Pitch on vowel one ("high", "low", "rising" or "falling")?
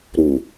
low